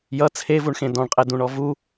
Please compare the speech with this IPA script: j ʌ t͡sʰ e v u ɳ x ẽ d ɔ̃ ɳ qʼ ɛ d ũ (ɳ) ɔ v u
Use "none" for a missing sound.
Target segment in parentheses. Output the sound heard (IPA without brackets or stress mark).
ɳ